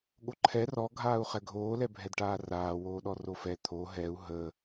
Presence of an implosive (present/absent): present